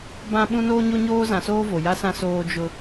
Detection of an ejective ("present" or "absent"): absent